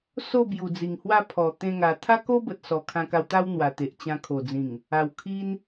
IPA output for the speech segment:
so˥˧ bju˨˩d͡zi˨˩ŋhwa˥˧ pʰɔ˨˩ t̪ẽ˧ŋa˨˩ t̪ʰa˦ko˦bə˨t̚ sɔ˨˩kʰã˧ka˧wt̪a˦w n̪wa˨˩t̪e˨ʔ t͡ɕã˧ kʰo˨˩d͡zĩ˨˩ŋ | a˨˩wkʰi˦n

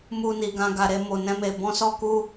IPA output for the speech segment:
mu˧ni˨ɡã˧ ɡa˨ɾe˧ mo˨nɛ̃˧me˨ bɔ̃˧sɔ˧ ku˦

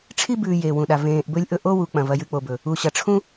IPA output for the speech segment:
ʈ͡ʂʰi˥bʉː˨ jeː˩wũ˩ɗa˩ vẽː˨ʔbɵ˦lʲʔɵ˦ ʔo˥wu˨ k͡pɐ̃˩vɐ˨jɨ˨ k͡po˨bɵ˩ | u˩ɕɐ˩ ʈ͡ʂʰũ˥

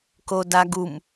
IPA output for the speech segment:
kodaɡum

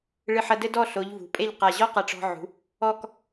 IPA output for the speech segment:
ɭɨ˧ħɐ˧dɘ˥ dɔ˥˧ɬo˩˧ʎ vṳ˩˧pʼe˥˧ʎqa˧˩ ʑɔ˥qɐ˧˩ʈ͡ʂɔ̤˧ʕṳ˩˧ | ɔ˥˧k

